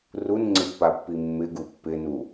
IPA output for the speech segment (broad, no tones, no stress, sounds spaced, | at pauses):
r u n ŋ͡ǀ ɪ pː a pː i mː ɪ ɡ u pː ɪ n u